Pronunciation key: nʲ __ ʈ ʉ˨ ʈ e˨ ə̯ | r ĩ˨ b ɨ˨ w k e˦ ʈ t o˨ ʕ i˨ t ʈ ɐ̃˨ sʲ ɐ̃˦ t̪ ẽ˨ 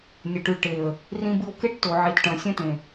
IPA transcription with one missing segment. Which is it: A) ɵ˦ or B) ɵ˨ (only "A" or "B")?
B